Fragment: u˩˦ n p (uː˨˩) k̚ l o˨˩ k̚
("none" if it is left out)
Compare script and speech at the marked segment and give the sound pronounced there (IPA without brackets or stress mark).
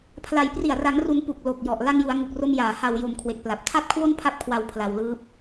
u˨˩